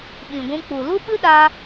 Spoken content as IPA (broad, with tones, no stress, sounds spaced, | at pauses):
ɓ ĩ˨ ɡʷ ũ˧ k͡p u˨ l u˦ ɓ ɨ˦ ɗ a˧